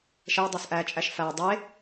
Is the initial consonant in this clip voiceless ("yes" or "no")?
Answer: yes